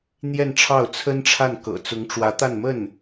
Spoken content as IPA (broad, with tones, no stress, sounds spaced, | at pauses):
n̪ j ɛ˥˧ n ʈ͡ʂʰ ɑ˥˩ ʊ̯ t͡sʰ ə˥ n ʈ͡ʂʰ a˥˩ n k ɤ̰˨˩ t͡s ʊ˧˥ ŋ ʈ͡ʂ w ä˧˥ t̪ a˥˧ n m ə˥˩ n